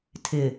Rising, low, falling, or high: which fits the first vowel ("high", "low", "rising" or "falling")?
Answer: low